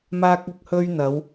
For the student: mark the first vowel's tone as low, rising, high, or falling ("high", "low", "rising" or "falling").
high